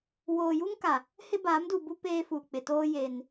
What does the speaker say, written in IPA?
w oː˨ j u˦ ŋ k a˨ | h ɪ˦ b aː˨˦ m d u˨ b u˦ p eː˦ f uː˨ k͡p ɪ˨ t oː˦ j e˨ n

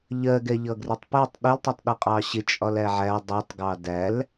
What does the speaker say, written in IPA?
ʎ ɜ ɡ ɛ ʎ ʌ ɡ r ɪ tˤ p ɛ tˤ ɗ ɪ l tˤ ʌ tˤ ɗ ʌ qʼ ɑ ɕ ɪ t͡ʃʼ ɒ l æ ʕ æ dˤ ɜ tˤ ɡ ɑ d æ l

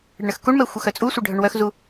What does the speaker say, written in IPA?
ɽ ə ɳ ə x k u ɳ m ɛ xʷ ə x œ t͡sʼ u sʷ ə ɖʱ œ ɳ w œ x z u

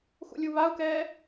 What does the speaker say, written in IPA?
x ṵ lʲ u β a u̯ k ɛː

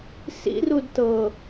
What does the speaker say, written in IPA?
s ḭ r u d t ɤ

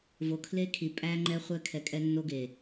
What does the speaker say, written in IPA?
v o˨ kʰ l e˦ kʰ i˨ pʼ æ˦ ŋ͡ǃ ɛ˦ χʷ ɛ˦ kʰ ɛ˨ kʼ ɛ˦ nː o˦ ɡ e˨

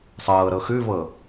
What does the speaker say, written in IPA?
sˤ ɤː ɾ ɤ x ʉ v ɤ

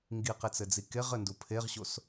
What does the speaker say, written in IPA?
ŋ ɡ i q e t͡s ɘ d͡z i k e ʁ ɘ n d u pʰ e ʁ ɕ o s

